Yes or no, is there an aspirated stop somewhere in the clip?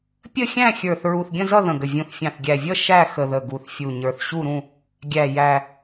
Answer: no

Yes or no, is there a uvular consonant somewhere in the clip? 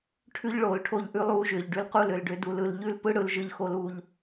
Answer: yes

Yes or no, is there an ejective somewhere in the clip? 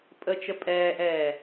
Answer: yes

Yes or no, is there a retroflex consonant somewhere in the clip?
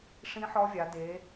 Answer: yes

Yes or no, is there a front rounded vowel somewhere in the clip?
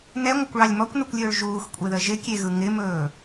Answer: no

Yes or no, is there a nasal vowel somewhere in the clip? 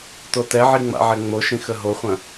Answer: yes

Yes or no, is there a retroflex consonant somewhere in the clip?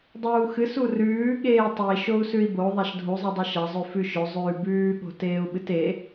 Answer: no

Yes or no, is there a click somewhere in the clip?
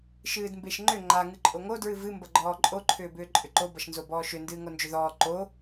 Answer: yes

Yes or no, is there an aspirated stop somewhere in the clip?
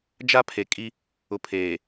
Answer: yes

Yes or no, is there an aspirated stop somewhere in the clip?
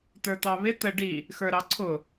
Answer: yes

